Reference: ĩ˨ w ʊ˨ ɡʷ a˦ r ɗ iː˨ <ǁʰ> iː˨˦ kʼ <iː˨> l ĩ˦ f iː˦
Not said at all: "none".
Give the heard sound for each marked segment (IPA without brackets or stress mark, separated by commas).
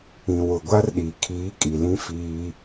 kʰ, i˨